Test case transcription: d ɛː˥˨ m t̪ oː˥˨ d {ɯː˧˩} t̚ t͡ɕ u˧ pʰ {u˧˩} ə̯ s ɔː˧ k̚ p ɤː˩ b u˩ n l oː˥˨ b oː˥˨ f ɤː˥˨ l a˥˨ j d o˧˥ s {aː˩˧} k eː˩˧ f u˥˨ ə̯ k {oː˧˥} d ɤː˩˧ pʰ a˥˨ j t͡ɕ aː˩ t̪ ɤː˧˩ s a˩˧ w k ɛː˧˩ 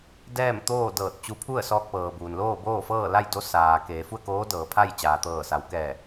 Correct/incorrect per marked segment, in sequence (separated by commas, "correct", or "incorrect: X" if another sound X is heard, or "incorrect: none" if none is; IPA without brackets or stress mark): incorrect: ɤː˧˩, incorrect: u˥˨, incorrect: aː˩, correct